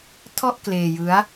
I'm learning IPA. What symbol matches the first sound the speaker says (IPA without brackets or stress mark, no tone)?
tʰ